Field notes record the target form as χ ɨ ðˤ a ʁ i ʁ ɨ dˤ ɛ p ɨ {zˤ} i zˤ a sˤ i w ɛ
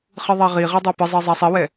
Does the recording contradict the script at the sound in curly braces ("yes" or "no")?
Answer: no